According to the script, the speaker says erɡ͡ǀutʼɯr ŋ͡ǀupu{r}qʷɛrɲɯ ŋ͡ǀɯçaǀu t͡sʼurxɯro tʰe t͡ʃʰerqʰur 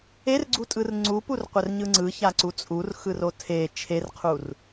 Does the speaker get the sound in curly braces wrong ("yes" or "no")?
no